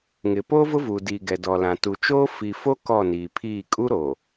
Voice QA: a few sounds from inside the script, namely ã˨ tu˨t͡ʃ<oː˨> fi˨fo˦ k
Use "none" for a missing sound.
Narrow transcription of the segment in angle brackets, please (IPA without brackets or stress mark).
oː˦